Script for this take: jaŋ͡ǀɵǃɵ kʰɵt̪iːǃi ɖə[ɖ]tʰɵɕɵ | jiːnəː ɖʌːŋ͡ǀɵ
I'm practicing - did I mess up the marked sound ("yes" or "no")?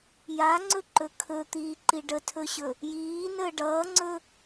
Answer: yes